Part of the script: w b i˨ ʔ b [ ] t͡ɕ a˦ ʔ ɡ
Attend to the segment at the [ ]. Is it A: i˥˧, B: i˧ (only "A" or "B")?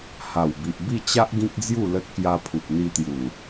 A